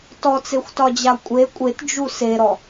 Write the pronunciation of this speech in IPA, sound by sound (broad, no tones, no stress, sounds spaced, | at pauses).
t ɔ t͡s e xʷ t ɒ d͡ʑ a kʷʼ e kʷʼ e t d͡ʒ u s e ɾ ɔ